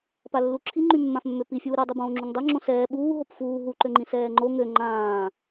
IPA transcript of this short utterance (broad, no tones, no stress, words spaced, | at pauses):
palːuǁʰi ŋ͡ǃymːãfmːøpi fʲuːɾɛ dˤubõːŋ͡ǁuŋdˤɛ ŋ͡ǁõsɛː ɓuː ɦopfuː ɦu ǃøŋ͡ǃĩsɛːŋ͡ǃo ŋø ŋ͡ǃãː